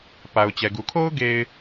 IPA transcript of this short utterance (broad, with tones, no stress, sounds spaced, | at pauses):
p a˨ ʊ̯ t͡ɕ ɛ˨ ɡ u˨ kʰ o˦ ʊ̯ ɡ e˨ ɪ̯